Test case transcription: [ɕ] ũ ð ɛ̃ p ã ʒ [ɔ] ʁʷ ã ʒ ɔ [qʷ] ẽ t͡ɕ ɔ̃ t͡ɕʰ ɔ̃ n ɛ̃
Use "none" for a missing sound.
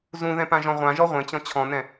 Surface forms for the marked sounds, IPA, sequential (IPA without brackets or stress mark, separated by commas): z, ɔ̃, ʁʷ